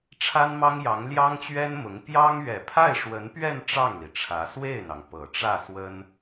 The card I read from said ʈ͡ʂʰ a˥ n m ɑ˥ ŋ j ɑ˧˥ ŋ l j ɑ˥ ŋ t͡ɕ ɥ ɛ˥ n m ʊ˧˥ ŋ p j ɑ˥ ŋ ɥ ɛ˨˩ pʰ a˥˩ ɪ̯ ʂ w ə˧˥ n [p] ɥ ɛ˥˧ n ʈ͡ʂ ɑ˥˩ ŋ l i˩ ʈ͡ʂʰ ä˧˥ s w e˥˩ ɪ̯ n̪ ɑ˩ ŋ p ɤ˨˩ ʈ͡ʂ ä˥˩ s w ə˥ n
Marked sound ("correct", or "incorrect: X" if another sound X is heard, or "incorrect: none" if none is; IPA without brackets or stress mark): correct